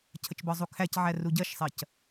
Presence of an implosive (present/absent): absent